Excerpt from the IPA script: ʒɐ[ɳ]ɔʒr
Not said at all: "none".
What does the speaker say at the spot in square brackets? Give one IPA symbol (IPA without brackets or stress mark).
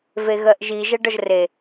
ɖ